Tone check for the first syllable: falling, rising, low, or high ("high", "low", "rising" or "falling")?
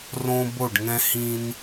high